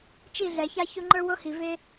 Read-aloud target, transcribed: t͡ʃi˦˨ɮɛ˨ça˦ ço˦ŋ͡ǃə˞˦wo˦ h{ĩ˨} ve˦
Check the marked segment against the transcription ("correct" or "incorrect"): incorrect